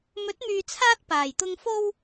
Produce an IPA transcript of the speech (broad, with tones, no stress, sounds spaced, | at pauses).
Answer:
m ɵ˨˥ t̚ m yː˨ t͡sʰ aː˧ t̚ p aː˨˩ j t̪ ʊ˧ ŋ f o˥ w